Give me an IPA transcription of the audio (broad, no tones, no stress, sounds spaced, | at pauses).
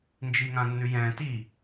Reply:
n d͡ʒ i ŋ ã nː ʉ j ɛ̃ t i